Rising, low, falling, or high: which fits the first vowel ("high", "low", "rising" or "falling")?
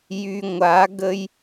low